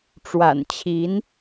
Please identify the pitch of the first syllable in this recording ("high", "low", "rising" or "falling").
low